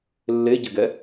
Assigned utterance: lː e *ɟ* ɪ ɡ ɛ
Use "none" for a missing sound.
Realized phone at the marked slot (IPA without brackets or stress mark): ɟ